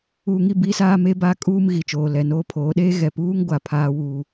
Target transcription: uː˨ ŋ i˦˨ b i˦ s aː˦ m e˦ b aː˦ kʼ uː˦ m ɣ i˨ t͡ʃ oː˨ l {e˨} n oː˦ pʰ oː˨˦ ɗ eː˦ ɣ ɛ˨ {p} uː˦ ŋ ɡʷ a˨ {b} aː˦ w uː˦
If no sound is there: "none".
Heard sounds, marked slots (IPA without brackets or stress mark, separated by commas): ɛ˨, p, pʰ